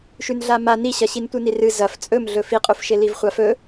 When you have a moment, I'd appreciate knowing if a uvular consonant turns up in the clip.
yes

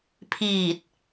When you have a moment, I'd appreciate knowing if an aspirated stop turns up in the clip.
yes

